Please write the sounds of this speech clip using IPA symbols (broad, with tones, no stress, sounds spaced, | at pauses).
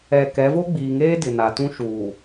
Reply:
ɛ˨ k ɛ˨˦ v o˦ ɡ͡b iː˨ ŋ eː˦ d ɪ˨ n a˨ t ũ˦ ʃ uː˨